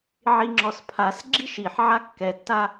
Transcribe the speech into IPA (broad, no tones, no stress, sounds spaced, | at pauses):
ʕ i ŋ͡ǁ ɔ s pʰ a s ɡ͡ǁ i ʃ i ħ ʕ a kː ɛ tː a